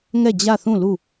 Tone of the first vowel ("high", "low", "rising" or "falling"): falling